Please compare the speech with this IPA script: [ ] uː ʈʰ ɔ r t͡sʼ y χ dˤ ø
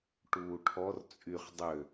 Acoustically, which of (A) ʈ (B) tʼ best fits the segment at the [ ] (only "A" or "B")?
A